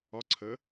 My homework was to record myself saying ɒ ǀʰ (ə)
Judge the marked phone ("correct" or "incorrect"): correct